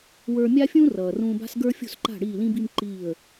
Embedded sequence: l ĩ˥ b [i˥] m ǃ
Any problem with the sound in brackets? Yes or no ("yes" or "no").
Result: no